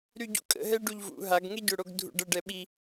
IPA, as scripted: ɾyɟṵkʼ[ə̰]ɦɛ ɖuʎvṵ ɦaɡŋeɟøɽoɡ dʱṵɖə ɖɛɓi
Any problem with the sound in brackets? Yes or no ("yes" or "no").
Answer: no